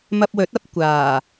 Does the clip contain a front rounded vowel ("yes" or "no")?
no